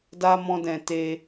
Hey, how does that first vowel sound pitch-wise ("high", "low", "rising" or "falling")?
high